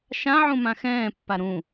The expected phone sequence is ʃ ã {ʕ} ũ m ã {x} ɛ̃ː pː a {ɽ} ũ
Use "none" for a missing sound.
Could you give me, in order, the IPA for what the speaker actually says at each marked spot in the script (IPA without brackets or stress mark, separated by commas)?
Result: ʕ, x, ɾ